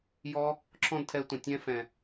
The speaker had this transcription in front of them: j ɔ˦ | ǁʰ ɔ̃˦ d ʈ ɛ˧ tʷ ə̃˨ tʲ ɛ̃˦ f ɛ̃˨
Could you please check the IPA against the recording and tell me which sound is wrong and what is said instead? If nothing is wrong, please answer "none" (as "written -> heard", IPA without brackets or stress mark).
ʈ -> tʰ